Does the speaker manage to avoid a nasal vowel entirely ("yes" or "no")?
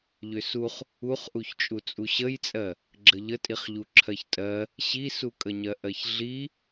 yes